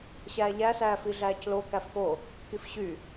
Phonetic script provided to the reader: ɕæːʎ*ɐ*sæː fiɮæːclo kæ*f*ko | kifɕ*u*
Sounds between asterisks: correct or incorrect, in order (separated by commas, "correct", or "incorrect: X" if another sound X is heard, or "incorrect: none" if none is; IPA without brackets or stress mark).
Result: incorrect: æ, correct, incorrect: y